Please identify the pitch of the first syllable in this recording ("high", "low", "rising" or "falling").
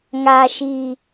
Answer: low